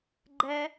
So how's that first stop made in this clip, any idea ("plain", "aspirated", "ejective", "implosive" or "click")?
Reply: click